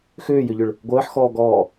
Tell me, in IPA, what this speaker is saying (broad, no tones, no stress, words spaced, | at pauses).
xʏːjʏʎʏɭ | ɡʷəːħxɔːɡɔː